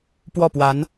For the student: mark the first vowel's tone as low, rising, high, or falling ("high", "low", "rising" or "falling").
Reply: falling